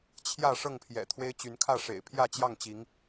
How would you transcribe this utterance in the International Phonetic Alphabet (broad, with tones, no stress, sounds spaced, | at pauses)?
t͡ɕʰ j ä˥˨ ʂ ɤ˥˨ ŋ pʰ j ɛ̰˨˩ t̪ʰ w e˦ ɪ̯ t͡ɕ y˨˦ n kʰ ä˥˨ ʂ ḛ˨˩ ɪ̯ pʰ j ä˥˨ t͡ɕ j ɑ˥˨ ŋ t͡ɕ i˨˦ ŋ